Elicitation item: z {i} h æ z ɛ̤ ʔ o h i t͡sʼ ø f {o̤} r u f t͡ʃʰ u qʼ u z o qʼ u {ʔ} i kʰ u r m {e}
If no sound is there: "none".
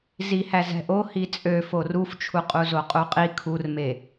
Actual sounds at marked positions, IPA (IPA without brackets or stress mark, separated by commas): i, o, qʼ, e